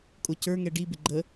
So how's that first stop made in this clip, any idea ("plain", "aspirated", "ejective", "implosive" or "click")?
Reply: ejective